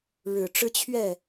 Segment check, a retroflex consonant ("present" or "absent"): present